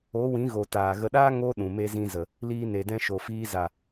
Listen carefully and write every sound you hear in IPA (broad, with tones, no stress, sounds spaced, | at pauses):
o˨˦ w ĩ˨˦ ɣ o˨ t aː˨ ɣ ə˧ ɗ aː˦ ŋ o˦ ɗ ũ˨ m e˧ z ĩ˧ z ə˨ | l iː˧ n e˨ d ɛ̃˧ ʃ o˨ f iː˧ z a˨